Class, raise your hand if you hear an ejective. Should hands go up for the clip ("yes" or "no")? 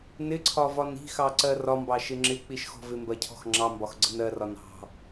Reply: no